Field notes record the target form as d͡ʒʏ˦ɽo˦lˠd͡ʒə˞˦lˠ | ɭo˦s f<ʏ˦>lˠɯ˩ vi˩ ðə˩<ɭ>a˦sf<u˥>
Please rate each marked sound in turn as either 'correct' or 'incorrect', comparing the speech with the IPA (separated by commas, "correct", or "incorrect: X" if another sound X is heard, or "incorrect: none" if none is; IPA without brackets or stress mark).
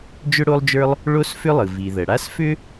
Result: correct, incorrect: ɽ, incorrect: ʏ˥